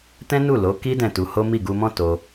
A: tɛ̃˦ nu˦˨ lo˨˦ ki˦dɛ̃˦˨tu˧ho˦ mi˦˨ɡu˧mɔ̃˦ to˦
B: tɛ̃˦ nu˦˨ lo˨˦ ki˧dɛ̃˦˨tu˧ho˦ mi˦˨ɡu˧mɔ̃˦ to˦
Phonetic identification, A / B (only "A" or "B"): A